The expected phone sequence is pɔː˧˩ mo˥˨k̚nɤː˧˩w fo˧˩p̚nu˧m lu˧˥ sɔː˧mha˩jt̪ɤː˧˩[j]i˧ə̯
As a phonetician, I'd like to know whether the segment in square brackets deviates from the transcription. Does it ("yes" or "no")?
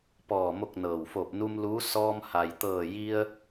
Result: no